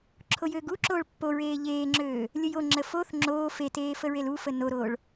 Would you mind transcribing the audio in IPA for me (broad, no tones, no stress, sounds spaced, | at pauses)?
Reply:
ǁʰ o j øː ɡ u ǁ oː ɭ pː o ɹ eː ʎ eː ŋ͡ǁ øː | lʲ ə j o ŋ͡ǁ ə f o θ ŋ͡ǁ oː f e t eː f ə ɹ e l u f ə n o ɾ oː ɭ